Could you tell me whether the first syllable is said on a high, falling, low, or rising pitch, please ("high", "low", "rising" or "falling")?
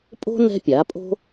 high